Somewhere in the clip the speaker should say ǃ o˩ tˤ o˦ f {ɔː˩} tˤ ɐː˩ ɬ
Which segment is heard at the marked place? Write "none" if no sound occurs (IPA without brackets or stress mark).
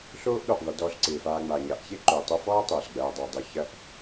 ɔː˥